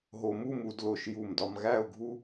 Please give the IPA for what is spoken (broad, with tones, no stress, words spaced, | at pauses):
ɦo˧mu˥˧m u˩˧d lo˧˩ʃju˧˩mdɒ˧m ɣæ˥˧ʊ̯ɡʱu˥